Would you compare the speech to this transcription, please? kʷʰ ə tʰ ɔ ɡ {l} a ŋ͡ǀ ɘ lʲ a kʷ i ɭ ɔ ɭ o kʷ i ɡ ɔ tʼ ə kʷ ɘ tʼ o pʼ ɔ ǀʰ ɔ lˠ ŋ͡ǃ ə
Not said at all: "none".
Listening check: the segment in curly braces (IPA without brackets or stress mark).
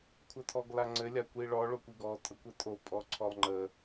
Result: l